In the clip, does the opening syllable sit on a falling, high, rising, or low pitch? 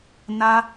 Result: high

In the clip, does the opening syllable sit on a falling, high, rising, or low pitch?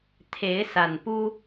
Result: rising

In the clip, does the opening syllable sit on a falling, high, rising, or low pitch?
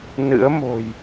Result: rising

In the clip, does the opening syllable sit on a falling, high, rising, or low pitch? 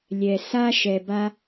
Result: low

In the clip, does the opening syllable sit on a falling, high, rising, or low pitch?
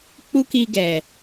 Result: high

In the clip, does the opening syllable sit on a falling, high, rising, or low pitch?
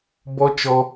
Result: high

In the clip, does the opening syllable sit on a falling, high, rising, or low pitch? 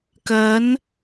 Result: rising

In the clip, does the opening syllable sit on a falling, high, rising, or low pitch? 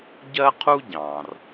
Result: high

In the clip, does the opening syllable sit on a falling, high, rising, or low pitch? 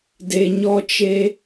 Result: low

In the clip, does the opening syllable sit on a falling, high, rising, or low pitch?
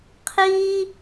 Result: high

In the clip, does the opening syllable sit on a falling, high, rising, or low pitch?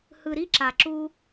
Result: low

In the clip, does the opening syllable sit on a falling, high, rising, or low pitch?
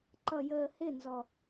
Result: low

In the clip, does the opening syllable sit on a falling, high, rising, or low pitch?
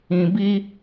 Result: low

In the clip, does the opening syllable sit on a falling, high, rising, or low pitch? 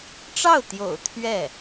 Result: falling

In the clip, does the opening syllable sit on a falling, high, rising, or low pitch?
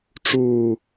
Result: low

